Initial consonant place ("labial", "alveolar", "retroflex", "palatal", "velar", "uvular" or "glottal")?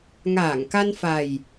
velar